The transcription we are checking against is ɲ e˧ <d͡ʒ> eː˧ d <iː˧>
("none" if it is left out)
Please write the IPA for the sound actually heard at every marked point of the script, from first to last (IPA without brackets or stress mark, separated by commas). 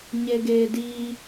ɡ, iː˧